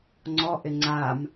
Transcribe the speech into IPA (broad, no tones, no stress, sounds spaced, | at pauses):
ŋ͡ǀ ɔ ʔ ɪ ŋ͡ǀ a m